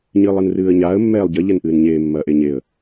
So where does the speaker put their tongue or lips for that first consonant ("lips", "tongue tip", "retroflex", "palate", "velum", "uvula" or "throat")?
palate